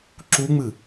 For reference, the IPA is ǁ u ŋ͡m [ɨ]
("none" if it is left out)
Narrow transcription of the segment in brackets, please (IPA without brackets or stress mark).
ɨ